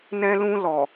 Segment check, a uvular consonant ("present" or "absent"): absent